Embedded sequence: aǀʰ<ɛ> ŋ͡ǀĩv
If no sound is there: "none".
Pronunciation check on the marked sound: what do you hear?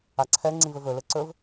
ɛ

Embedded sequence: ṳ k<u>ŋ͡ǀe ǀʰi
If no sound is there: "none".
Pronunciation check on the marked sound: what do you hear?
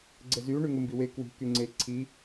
y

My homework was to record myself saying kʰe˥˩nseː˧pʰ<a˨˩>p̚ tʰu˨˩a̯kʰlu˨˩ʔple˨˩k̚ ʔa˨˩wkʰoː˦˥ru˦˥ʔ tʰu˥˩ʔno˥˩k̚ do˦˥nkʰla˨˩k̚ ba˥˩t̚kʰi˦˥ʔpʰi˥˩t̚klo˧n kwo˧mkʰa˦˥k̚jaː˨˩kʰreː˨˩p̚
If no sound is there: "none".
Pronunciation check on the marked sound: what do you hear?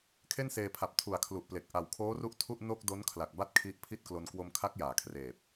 a˨˩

